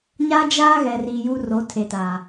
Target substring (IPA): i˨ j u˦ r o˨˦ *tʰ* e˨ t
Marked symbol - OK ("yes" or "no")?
yes